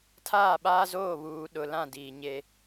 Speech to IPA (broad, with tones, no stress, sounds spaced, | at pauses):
tʰ aː˦˨ ɓ aː˦ z oː˦˨ β uː˨ ɗ ʊ˨ l ã˦˨ d iː˨ ɲ e˦